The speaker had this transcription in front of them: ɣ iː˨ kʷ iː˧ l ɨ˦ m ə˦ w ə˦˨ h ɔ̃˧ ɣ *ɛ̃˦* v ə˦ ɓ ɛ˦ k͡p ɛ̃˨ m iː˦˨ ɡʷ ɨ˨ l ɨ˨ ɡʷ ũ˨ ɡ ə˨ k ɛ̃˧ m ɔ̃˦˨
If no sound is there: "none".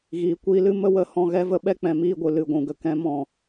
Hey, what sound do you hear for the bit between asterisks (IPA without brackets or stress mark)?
ɛ˦